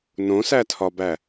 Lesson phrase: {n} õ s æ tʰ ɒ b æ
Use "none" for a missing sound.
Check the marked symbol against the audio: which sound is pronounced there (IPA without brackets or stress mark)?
n